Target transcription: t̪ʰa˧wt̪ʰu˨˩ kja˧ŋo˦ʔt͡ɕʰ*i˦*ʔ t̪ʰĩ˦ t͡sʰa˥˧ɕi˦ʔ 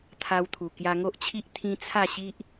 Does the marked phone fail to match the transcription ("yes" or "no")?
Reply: no